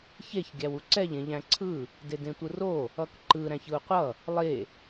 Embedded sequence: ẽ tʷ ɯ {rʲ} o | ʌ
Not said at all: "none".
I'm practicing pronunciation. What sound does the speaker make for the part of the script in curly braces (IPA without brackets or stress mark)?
r